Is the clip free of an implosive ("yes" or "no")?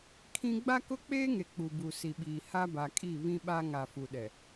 no